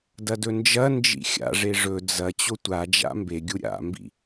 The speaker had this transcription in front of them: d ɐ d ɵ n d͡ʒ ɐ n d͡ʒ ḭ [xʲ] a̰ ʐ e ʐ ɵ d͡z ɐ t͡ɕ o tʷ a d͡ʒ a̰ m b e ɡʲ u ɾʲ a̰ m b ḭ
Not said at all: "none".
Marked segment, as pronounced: xʲ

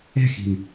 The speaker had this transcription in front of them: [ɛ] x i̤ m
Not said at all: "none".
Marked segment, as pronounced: ɛ̤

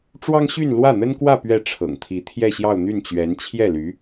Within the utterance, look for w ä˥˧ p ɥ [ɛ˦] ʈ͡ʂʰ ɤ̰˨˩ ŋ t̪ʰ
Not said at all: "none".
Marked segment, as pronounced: ɛ˥˩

